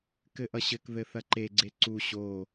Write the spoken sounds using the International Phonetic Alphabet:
k ɘ ʔ ʌ ɕ ɘ k ð ɘ θ ɐ ǃ e ɡ͡ǀ e ǀ u ɕ o

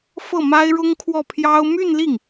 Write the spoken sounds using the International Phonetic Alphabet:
f ɤ˥˩ m a˥ ɪ̯ ɻ ʊ˥ ŋ kʰ w ɔ˥˩ pʰ j ɑ˥ ʊ̯ m y˥˧ n l i˥˩ ŋ

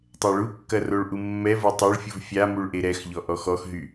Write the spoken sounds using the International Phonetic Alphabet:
tˤ ɛ ɭ u kː ɐ r o ɭ ʔ u mː ɛ v o tˤ ɛ ɭ fʲ u v fʲ a m u ɭ ʔ e ɾ ɛ x ʎ ɔ ʔ ɔ x ɔ x ɦ y

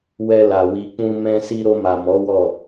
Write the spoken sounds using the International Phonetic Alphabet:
w ɛ˧ l a˨ w i˨ k͡p ũ˧ m ɛ̃˧ s i˧ ɾ o˧ m a˨ m ɔ˨˦ w ɔ˦˨

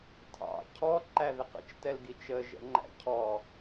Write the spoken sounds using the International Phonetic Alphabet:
tʰ ɑ̰ cʰ ɔ ǃ æ ð ɪ q ə̰ t͡ʃ t ɛ l ɡ i t͡ʃ ə ʒ ɛ̰ ŋ͡ǃ æ̰ cʰ ɔ

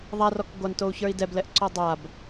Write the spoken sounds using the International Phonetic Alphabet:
ðˤ a r ɔ k ɡʷ a n t o u̯ ç ə˞ i̯ d ɛ b l ɛ ʔ ǀ ɔ dˤ a b

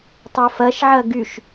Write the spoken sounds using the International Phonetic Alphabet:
tˤ o f ɐ ʃ ʕ ɐ ɡ y ʃ

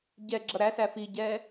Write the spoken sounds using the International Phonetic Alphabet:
ɟ ɛ ɡ͡ǁ ʌ ɾ æ s æ f i ɟ ɛ

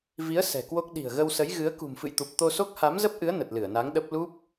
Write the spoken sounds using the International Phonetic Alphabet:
v i˨˦ ə̯ s ɛ̤˨˩ k w o˦˥ k̚ ɗ i̤˨˩ ə̯ ɣ ə˧ w s ə˨˦ j ɣ ɨ˨˦ ə̯ k ṳ˨˩ m f ɨ̰˧˨ j t̪ u˨˩ p̚ t̪ o˧ s o˦˥ k̚ h a˨˦ m z ə˦˥ p̚ ʔ ɨ˨˦ ə̯ n ə˨˩ t̚ l ɨ˧˩ ə̯ n a˨˦ ŋ ɗ ə˦˥ p̚ l u˦˥ p̚

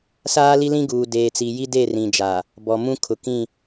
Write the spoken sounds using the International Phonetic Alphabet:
s aː˦ l i˦ l ĩ˦ ɡ uː˨ d eː˨ t͡s i˨ j i˦ d e˦˨ r ĩ˨ d͡ʒ a˨ | b ɔ˨ m ũ˦ kʰ ʊ˨ k ĩ˦˨

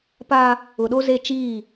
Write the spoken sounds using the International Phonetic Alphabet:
p a˦ | ʊ˨ ɗ o˦ z e˦˨ t͡ʃ iː˦˨

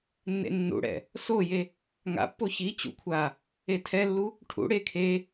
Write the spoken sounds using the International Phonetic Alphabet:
nː ḛ nː ṵ ɽ ɛ̰ | s o j e | ŋ a̰ pː o ç i t͡ɕ ṵ kʷʰ a | e tʰ ɛ lː u | ʈʰ ṵ ɽ e kʰ e

